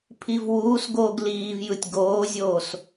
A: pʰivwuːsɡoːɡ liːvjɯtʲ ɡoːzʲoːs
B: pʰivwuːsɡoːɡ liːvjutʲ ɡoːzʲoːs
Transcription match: A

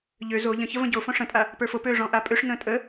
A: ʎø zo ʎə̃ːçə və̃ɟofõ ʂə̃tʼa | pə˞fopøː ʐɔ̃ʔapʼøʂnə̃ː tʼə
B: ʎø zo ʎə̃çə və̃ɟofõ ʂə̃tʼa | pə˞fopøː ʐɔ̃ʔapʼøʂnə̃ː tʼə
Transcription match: B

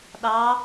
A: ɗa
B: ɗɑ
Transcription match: B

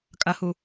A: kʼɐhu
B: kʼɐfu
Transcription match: A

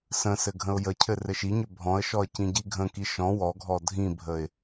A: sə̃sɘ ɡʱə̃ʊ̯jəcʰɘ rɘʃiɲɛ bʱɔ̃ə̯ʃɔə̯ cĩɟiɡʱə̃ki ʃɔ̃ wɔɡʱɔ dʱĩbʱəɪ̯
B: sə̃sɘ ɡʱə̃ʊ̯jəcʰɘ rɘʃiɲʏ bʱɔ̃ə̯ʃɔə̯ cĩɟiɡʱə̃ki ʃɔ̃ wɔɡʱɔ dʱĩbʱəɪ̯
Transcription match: B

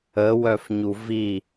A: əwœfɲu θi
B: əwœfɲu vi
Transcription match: B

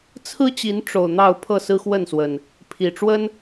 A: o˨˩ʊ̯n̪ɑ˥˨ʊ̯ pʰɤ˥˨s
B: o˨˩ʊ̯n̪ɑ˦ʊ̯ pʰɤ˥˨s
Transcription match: A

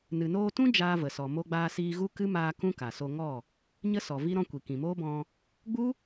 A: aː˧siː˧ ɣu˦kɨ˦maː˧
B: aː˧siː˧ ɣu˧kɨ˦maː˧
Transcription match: A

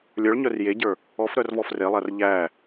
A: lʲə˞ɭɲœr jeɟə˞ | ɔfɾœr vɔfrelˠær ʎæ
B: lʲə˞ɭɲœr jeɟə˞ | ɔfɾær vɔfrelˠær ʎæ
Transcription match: A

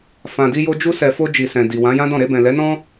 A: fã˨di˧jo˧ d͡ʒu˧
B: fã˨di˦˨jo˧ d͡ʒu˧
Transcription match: A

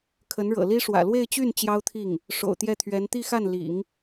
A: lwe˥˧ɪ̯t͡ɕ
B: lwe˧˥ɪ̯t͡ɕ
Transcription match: A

